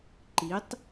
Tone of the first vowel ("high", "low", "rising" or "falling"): rising